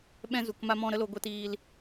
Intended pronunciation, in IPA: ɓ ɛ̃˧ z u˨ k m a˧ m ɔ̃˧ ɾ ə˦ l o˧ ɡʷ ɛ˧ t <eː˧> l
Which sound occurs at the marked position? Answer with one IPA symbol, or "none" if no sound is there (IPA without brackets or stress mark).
iː˧